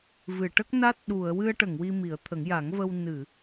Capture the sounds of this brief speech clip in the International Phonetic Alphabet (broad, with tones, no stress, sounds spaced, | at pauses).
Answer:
v ɨ˨˩˨ ʈ ə˦˥ k̚ n a˦˥ t̚ ɗ u˨˩˨ ə̯ w ɨ˧ ə̯ ʈ ə˨˩˨ ŋ w i˧ m i˨˩˦ ə̯ t̪ʰ ə˨˩˦ ŋ j a˨˩˦ ŋ v ə˧ w n ɨ˨˩˨